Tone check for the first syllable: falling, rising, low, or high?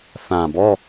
low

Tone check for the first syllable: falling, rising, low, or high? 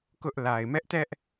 high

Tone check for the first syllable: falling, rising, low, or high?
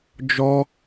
high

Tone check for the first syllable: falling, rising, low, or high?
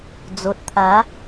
low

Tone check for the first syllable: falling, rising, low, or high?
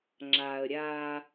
low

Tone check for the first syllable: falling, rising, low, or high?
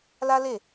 high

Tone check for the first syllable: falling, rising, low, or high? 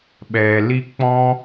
low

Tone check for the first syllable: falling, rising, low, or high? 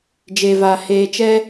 low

